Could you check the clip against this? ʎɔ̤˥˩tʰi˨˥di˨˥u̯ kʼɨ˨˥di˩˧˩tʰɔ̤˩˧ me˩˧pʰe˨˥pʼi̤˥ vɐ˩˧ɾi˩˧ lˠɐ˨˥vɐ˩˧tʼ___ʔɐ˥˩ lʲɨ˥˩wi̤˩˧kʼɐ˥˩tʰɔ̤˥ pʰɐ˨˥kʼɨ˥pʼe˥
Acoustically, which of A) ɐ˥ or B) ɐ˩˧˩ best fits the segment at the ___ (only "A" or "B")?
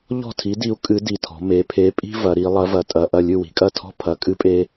B